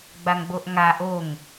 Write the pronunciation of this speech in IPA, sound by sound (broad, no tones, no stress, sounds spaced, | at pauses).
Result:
ɡ͡b a ŋ ɡ͡b o ʔ ŋ a ʔ o ŋ